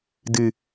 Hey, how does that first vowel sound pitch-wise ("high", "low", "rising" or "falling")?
low